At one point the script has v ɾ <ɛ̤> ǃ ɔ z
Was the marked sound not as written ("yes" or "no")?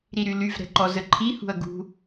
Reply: no